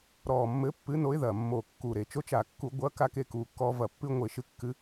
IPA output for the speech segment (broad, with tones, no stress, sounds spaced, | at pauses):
ɾ ɔː˨˩ mː ɘː˨˥ pː ɨ˨˥ n o˨˥ ɪ̯ ð ɐ˨˩ mː o˨˩ kː u˨˩ ɾ e˨˩ t͡ʃ o˧ t͡ʃ a˧˩˧ kː u˧˩˧ ɡʷ ɐ˨˥ k a˧ k e˧ k uː˨˩ kː ɔː˧ v ɐ˨˩ pː ɨ˧ ŋʷ e˧˩˧ ʃ ɨ˧ kː ɨ˨˥